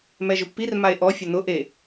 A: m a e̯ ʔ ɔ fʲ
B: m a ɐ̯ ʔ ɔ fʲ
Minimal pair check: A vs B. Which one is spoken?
A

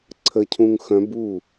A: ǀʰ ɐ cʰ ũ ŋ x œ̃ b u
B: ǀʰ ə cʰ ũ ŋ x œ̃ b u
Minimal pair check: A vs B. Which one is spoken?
B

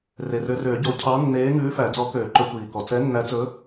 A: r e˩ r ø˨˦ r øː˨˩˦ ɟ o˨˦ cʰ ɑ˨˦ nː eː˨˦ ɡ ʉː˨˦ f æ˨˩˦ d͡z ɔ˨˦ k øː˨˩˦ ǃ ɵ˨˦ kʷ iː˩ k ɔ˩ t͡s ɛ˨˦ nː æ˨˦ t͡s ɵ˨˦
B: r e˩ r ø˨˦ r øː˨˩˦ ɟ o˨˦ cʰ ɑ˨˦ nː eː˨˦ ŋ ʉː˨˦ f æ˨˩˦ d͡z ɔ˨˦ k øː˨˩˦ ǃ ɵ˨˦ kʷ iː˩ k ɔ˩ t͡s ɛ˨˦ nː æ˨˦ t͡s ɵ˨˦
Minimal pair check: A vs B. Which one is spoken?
B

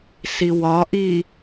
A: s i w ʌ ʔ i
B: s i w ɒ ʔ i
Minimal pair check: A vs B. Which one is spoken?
B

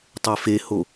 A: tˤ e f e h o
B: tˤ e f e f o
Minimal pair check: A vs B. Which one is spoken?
A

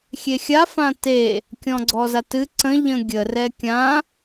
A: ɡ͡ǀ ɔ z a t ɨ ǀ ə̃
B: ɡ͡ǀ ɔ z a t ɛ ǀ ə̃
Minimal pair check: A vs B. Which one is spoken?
A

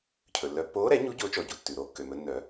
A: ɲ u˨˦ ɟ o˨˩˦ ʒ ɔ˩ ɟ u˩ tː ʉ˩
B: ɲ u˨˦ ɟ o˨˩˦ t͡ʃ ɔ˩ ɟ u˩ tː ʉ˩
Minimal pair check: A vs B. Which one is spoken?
B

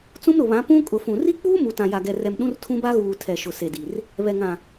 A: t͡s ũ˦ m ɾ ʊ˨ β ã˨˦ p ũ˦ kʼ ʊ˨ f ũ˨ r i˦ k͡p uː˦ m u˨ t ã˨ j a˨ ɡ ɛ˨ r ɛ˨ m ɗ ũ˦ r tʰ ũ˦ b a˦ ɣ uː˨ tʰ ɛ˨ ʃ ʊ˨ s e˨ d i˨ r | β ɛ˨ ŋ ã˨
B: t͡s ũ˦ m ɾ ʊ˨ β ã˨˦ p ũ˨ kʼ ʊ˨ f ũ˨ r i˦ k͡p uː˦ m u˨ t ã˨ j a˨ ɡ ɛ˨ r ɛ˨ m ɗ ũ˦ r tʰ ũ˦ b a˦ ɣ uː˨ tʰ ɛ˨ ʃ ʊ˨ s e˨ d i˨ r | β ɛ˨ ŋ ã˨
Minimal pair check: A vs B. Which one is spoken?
A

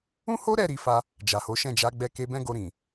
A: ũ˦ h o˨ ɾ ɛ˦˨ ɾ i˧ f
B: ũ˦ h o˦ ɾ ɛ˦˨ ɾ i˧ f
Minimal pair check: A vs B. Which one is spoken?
B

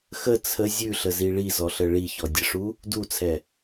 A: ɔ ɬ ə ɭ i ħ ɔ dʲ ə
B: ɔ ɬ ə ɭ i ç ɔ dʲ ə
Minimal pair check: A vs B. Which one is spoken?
B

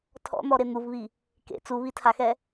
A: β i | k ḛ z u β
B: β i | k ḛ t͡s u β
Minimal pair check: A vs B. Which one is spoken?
B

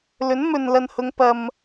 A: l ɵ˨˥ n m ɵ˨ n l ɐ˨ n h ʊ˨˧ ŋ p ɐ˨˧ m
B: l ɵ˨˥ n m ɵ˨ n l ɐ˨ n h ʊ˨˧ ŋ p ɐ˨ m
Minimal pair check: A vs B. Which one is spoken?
B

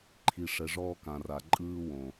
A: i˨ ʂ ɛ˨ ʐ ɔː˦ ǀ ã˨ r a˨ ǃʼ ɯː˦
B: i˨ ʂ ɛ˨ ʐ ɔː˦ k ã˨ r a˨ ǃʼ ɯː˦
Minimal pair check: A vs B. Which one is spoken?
B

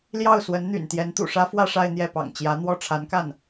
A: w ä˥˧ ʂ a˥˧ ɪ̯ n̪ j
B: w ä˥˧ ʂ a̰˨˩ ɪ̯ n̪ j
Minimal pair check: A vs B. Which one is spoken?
A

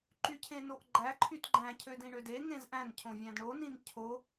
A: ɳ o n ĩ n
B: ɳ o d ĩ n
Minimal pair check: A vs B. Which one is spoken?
A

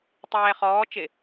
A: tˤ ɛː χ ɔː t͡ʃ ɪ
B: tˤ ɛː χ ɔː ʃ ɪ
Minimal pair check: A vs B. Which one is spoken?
A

